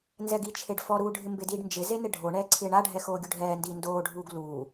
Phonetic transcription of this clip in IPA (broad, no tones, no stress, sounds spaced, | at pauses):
n z ɛ ɡ i t͡ʃʰ e ɖ f ɔ ɾ uː ɖʱ ɪ m b ɪ d iː ɖ n d͡ʒ ɪ z e n ɪ ɖʱ o ɳ ɛː ǀʰ ɪː ɳ a ɖʱ ɛ x oː ɡʲ u ɖʱ ɛː n d iː n d oː ɖʱ uː ɡ l uː